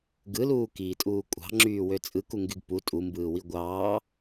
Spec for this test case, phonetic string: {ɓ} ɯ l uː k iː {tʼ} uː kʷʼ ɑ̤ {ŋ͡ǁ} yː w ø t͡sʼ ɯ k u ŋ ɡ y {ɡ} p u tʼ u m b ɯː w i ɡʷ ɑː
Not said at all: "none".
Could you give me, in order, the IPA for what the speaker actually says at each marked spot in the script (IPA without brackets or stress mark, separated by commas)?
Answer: ɡ, tʼ, ŋ͡ǁ, ɡ